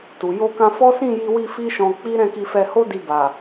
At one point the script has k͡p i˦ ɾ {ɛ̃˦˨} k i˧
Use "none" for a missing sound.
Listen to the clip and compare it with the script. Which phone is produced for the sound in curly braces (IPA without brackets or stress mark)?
ɛ̃˦˨